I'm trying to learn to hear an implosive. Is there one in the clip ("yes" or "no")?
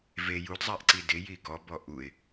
no